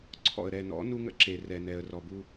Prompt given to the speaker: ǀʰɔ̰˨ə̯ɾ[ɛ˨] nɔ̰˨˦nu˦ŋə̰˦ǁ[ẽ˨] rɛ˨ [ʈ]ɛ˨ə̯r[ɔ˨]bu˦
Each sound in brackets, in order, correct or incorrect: correct, incorrect: e˨, incorrect: n, correct

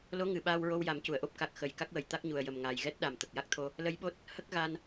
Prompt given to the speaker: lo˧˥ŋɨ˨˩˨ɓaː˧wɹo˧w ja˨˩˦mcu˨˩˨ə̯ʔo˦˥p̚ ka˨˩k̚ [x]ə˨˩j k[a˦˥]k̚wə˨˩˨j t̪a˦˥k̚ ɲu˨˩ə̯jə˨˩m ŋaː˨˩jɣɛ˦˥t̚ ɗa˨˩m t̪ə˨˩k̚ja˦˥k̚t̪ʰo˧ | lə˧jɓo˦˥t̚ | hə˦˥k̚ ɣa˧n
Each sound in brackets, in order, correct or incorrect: correct, correct

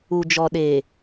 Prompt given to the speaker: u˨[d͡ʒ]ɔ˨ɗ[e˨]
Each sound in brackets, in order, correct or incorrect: correct, incorrect: eː˨

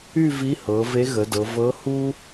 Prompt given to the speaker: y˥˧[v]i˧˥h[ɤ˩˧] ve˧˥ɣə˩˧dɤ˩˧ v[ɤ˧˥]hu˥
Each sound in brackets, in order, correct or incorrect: correct, correct, correct

